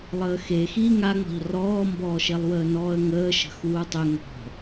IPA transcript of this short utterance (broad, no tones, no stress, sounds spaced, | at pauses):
lˠ əː x e x iː ŋ a ŋ͡m ɔ̤ ʎ r ɔː m b ɔː ʃ e lˠ w əː n ɔː ə̯ ŋ əː ʃ ə̤ x uː tˤ ʏ ŋ ɔ̤